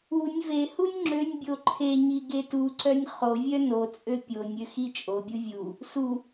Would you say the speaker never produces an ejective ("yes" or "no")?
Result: no